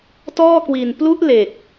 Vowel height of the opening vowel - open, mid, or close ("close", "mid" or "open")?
mid